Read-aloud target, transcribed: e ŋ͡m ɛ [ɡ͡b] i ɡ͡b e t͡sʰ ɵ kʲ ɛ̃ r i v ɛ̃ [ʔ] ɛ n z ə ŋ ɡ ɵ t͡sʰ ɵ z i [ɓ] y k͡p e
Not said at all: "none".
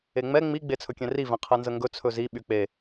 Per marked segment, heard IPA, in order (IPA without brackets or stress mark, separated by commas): ŋ͡m, qʰ, ɓ